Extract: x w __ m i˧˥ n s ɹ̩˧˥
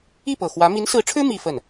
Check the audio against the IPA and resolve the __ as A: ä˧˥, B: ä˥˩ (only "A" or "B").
A